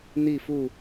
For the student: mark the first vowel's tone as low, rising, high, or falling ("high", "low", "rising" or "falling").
falling